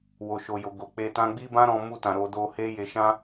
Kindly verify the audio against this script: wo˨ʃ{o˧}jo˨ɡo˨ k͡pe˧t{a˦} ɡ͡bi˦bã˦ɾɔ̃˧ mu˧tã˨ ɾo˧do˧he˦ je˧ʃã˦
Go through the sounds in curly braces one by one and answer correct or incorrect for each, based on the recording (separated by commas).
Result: incorrect, incorrect